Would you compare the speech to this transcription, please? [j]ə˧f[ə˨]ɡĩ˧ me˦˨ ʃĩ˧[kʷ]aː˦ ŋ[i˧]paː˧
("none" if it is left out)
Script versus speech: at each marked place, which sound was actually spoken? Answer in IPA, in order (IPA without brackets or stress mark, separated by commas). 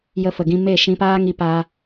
j, ə˨, p, i˧